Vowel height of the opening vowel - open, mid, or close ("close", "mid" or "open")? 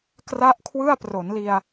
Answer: open